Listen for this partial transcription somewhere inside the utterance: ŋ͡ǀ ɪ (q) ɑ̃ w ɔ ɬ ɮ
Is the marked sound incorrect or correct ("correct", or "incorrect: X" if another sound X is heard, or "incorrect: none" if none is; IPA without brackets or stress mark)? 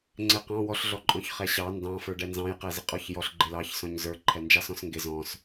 correct